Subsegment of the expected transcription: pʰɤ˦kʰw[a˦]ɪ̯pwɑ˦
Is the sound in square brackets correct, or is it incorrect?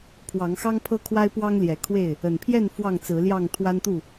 correct